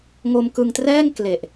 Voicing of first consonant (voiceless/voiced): voiced